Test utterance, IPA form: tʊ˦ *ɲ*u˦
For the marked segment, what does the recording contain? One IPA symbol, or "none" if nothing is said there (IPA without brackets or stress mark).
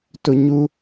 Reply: ɲ